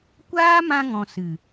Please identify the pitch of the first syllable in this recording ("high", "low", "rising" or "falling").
high